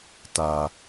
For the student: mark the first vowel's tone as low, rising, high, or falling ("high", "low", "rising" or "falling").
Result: low